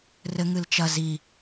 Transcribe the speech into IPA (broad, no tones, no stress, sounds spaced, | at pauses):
r ɘ ŋ ɨ l t͡ʃ ɐ z i